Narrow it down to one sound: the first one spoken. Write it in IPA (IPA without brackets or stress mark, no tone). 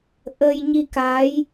ʔ